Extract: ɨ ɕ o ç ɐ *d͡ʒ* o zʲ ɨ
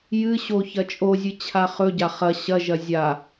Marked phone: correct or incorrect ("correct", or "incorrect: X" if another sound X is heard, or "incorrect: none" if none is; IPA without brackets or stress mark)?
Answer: incorrect: t͡ʃʼ